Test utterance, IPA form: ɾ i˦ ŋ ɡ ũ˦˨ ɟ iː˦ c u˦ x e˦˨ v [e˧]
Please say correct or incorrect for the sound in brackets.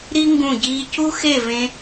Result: incorrect